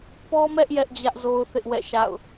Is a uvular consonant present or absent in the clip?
absent